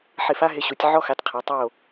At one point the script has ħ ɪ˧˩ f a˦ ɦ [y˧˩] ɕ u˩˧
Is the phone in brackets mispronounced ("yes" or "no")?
yes